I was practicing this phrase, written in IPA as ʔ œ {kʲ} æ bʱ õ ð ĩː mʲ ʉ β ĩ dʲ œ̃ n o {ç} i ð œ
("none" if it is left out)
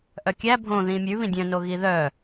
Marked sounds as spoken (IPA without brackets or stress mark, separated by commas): kʲ, ɣ